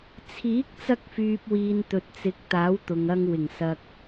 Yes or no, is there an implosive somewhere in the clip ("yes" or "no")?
no